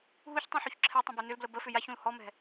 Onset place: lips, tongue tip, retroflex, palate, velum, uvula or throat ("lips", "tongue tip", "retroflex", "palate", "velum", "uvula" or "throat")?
throat